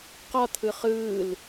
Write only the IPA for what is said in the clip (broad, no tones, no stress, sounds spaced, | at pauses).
q ɒ t̪ʰ ɯ χ ɯː l